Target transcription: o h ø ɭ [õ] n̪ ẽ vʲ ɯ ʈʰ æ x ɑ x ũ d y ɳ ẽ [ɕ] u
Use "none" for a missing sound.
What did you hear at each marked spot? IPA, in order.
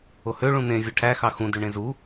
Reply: ũ, z

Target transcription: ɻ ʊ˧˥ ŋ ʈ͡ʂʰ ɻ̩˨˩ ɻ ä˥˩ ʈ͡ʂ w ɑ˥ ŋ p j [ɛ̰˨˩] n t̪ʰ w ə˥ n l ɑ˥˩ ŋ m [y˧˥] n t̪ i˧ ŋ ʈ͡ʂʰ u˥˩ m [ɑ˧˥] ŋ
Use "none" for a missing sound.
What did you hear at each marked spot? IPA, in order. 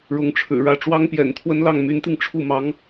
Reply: ɛ̰˨˩, y˧˥, ɑ˧˥

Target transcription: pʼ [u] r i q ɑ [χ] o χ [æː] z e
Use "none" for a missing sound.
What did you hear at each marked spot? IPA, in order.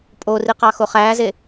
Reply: o, x, æː

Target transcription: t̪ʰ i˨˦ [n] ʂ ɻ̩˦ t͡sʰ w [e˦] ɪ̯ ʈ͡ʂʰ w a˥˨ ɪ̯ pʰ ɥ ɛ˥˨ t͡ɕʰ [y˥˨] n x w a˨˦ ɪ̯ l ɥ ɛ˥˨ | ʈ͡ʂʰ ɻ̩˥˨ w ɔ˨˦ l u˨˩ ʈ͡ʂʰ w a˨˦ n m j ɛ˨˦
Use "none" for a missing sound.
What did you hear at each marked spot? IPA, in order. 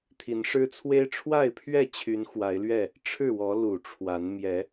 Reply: n, e˦, y˨˦

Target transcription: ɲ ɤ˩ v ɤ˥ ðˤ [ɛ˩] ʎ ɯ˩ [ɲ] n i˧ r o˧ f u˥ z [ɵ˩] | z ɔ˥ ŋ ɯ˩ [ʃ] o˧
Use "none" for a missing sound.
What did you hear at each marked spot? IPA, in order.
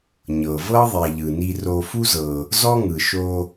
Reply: ɛ˩, none, ɤ˩, ʃ

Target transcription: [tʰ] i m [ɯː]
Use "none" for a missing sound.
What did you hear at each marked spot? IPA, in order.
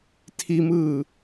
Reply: tʰ, ɯː

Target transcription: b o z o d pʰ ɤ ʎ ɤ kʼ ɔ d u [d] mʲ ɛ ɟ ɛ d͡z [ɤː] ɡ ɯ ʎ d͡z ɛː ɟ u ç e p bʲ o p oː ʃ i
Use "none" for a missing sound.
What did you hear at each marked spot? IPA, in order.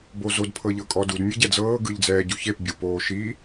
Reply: d, ɤː

